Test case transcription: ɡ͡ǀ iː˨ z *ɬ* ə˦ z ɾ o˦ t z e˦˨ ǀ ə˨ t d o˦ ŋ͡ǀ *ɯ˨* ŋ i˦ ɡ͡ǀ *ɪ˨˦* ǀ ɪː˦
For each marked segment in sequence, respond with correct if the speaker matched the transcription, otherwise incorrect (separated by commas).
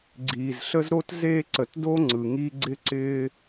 correct, correct, incorrect